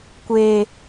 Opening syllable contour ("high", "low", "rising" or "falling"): high